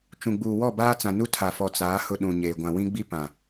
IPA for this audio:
t͡ʃ ũ˨ ɡ͡b uː˨ w ɔ˦˨ b aː˦ t͡s ã˨ n u˦ tʰ a˨ f ɔ˨ t͡s aː˨˦ h ʊ˦ ɗ ũ˨ ɲ eː˨ ɡʷ ã˨ w ĩ˦ ɡ͡b i˦ p ã˨

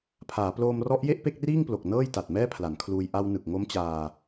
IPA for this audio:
pʰ aː˩˦ p l oː˧ m r ɔ˦˥ ʔ j e˥˩ ʔ p e˥˩ k̚ r iː˥˩ ŋ p l o˨˩ k̚ n ɤː˥˩ j t a˨˩ t̚ m ɛː˥˩ pʰ l a˩˦ n kʰ l uː˧ j ʔ a˧ w n ɯ˨˩ k̚ ŋ o˦˥ m t͡ɕ aː˧

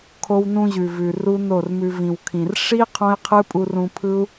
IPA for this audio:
kʰ o˧ w n ũ˧ ʑ ʉ˨ v ʉ˨ r u˦ n o˦˨ r m ʉ˧ v ĩ˨ w kʰ ĩ˨ r ʂ i˦ qʰ õ˦ i̯ qʰ ɯ˦ pʼ u˧ r ũ˧ pʰ ɯ˦ u̯

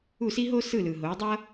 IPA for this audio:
u˥˩ s i˥ ɦ o˥ s ɯ˥˩ l ɯ˩ ɦ o˩˥ dˤ ʌ˥

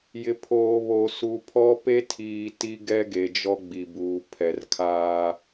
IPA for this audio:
j ɪ˨ pʰ oː˨ β o˨ s u˨ pʰ ɔ˦ p e˦ tʰ iː˨ t i˦ ɡ ɛ˦ ɡ e˨ d͡ʒ ɔ˦ ɡ͡b i˨ b uː˨ pʰ ɛ˨ r kʰ aː˦

